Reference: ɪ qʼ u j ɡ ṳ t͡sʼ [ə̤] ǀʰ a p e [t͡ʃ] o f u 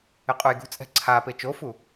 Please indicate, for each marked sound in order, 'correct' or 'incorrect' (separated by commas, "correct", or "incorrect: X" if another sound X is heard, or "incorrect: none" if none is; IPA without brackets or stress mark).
incorrect: ɛ̤, correct